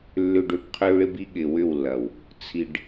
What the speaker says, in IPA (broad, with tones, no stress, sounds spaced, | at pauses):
lː ʏ˨ ɖ ø˨ p qʰ ø˦ ɭ ɪ˦ b i˦ ɠ ɪ˨ w ʏ˦˨ w lː ɐ˨ w | t͡sʰ i˨ ɖ